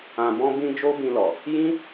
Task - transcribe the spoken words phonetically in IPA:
ã˨bɔ̃˧bĩ˧ d͡ʒo˦bĩ˧lɔ˨ | jĩ˦

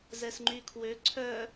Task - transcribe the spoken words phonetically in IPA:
zɛsŋ͡ǃykʰwø ǀʰœ

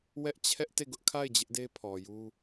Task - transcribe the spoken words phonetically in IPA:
wɛ˦ʔt͡ɕʰɛ˦ʔ te˦˨ɡʊ˦ʔkʰa˦˨ɪ̯ d͡ʑɪ˦ʔde˦pʰɔ˨ju˦

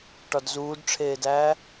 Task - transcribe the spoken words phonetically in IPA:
ʈɒdzuːdʈ͡ʂʰeːdæː

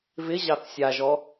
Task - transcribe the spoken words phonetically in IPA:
vɪ ʑɑθsʲaʒɔ

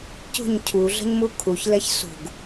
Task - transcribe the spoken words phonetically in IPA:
cṳɲ cʰuɮə̤ɲmu kʰuçlɛç sṳɡ

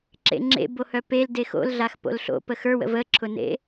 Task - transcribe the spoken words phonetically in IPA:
ǁḛŋ͡ǁḛbohœ pel dexo̰lɮax po̰lɬo̰ pəxə˞wə̰ vəǁʰʊnḛ

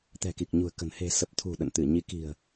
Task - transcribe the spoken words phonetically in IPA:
t̪ɛ̤˨˩ki˨˩k̚ɲṳ˨˩ə̯kə̤˨˩n he̤˨˩ sə˨˩p̚t̪ʰṳ˨˩ ɗə̰˧˨nt̪ɨ˧˩ɲi˨˦ki̤˨˩ə̯

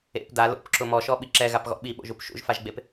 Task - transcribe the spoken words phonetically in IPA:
ḛp da lo̰pǁʊ mɔʃɔɓi ǁɛɣapɣɔ̰ ɓiɓo̰ʒup ʃṵʒfaʒɡ͡bep

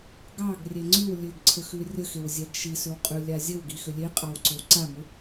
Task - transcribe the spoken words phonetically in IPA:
ɡɑɡrʲe ŋ͡ǀʉw lʲʉɡǀʰəxʉ rʲəxewzʲæɡ ʃisʏwqʼʉlʲa zʲəwɡixʏ lʲeqʼɑwǀʏw ǀamʏ

